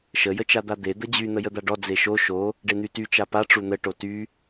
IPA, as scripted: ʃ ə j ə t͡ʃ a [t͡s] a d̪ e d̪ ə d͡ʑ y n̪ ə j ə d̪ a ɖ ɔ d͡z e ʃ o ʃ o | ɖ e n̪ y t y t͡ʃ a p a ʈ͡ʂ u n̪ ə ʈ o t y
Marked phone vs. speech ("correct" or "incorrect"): incorrect